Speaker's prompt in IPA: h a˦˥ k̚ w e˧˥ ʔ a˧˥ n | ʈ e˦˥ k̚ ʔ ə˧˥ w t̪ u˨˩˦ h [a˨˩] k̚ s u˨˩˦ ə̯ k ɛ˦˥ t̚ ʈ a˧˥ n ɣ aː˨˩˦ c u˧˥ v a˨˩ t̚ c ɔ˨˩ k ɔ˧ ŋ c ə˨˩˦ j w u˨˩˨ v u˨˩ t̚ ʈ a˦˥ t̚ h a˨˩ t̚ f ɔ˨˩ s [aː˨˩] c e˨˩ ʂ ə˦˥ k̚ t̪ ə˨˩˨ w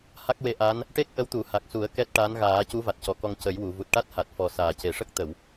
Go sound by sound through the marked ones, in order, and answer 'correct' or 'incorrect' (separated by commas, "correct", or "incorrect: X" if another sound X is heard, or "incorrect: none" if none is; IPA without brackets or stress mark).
correct, correct